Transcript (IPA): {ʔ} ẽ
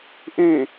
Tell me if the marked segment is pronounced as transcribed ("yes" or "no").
yes